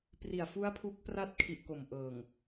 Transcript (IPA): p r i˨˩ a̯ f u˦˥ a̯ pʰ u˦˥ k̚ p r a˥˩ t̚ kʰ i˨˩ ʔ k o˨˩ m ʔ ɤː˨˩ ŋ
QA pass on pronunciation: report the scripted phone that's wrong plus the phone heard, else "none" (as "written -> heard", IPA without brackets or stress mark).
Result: none